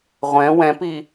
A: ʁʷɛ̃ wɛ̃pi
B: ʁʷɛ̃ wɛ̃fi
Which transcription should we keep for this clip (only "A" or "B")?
A